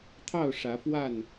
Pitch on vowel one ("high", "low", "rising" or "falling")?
falling